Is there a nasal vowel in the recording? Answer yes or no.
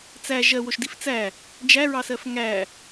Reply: no